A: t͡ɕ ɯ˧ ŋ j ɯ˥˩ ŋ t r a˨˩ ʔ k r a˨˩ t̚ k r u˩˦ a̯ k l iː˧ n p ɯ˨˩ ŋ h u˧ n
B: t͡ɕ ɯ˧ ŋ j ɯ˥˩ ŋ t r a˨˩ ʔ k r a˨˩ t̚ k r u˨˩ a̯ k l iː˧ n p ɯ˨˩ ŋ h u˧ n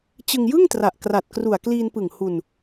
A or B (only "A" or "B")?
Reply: B